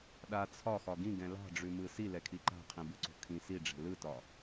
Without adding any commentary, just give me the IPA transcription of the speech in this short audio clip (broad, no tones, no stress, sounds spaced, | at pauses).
ɗ a t͡sʰ ɒ x ɒ ɡ ĩ ɡ ɛ̃ l ɑ̤ ɖ͡ʐ ʉ m ɯ s i l ɛ kʰ i ǃ a̤ qʰ ĩ b ɯ ǀ o̤ kʰ ĩ s i ɖ͡ʐ ɛ̤ l ɯ t ɒ